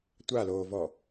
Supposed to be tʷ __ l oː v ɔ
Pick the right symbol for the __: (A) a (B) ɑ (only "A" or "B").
A